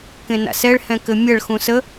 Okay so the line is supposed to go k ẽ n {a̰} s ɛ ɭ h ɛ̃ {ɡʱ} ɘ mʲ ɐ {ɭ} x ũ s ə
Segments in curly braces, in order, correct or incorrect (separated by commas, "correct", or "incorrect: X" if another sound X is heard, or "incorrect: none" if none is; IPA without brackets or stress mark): correct, incorrect: k, correct